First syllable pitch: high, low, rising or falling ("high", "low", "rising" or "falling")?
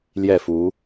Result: falling